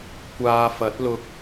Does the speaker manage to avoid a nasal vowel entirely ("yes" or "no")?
yes